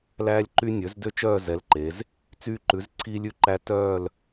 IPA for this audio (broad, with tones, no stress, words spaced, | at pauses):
læː˦lʲǃy˦ nʲø˩˥zdø˦t͡ʃœː˦˨ zɛ˩˥lǃe˩˧z | t͡syː˦ǃʉ˩˥z ǀʰiː˦lʲʉ˦ǃæ˦ tœː˦˨l